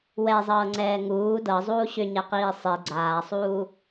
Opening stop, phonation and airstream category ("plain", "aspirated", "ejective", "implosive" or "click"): click